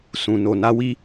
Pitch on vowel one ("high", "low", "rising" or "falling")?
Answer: low